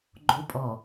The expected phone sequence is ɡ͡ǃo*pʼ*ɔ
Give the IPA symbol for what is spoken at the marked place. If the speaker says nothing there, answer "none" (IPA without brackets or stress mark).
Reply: pʼ